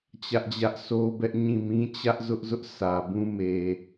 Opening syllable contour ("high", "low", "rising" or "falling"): high